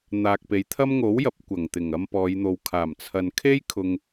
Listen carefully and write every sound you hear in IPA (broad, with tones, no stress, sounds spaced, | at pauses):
n̪ aː˨ k̚ p e˨˥ j t̪ʰ ɐ˥ m ŋ o˨˥ w j ɐ˨˥ p̚ kʷ ɐ˨˩ ŋ t̪ ɪ˨˩ ŋ ɐ˧ m p ɔː˨˧ j n̪ o˨ w kʰ aː˨˩ m t͡sʰ ɐ˨ n kʰ e˥ j kʰ ʊ˨ ŋ